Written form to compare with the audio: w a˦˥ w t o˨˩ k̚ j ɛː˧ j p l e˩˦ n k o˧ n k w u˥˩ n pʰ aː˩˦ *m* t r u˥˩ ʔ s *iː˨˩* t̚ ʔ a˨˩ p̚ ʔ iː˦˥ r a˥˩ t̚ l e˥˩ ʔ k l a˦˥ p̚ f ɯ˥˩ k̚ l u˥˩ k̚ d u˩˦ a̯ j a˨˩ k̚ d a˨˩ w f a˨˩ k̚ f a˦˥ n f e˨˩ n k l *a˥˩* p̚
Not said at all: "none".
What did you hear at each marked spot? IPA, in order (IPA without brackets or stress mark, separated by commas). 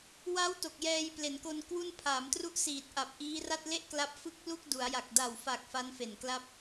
m, iː˨˩, a˦˥